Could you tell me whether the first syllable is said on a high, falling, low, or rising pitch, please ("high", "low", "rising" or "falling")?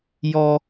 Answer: high